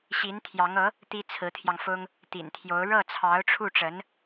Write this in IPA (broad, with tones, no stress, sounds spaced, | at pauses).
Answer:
ɕ i˧˥ n t̪ʰ j ɑ˧˥ ŋ ɤ˧˥ | t̪ i˥ t͡sʰ ɹ̩˧˥ t̪ʰ j ɑ˧ ŋ f ʊ˥ ŋ | t̪ ḭ˨˩ n t̪ʰ j o˧˥ ʊ̯ ɻ ɤ˥˩ t͡sʰ ɑ˧˥ ʊ̯ ʈ͡ʂʰ u˥˩ ʈ͡ʂ ə˧˥ n